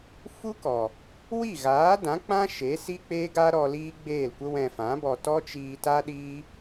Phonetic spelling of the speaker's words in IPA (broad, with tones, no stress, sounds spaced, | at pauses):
f u˦ k ɔ˨ | w i˦˨ ɣ aː˨˦ d ã˨˦ k͡p ã˦ ʃ e˨˦ s i˦ k͡p e˦ ɡ a˦ ɾ ɔ˧ l iː˦ ɡ͡b eː˦˨ l kʷ ə˦ w ɛ̃˧ f ã˨˦ b ɔ˧ t ɔ˦ t͡ʃ iː˧ t a˦ ɗ iː˦